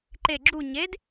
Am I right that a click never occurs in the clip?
no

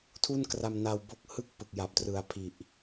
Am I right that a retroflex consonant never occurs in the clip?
yes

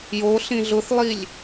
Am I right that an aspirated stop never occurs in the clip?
yes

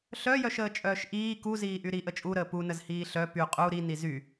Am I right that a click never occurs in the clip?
yes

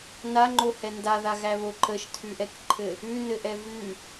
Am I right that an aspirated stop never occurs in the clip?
no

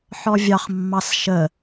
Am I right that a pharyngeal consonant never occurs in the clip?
no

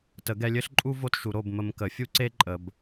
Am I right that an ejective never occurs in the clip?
no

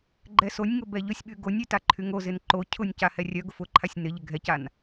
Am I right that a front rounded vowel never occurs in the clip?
no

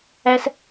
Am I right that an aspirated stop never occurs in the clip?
yes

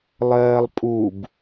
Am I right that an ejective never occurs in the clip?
no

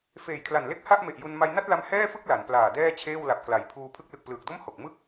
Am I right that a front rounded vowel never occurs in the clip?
yes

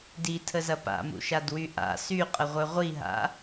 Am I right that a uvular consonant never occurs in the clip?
no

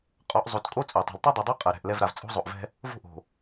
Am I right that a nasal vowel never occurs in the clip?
yes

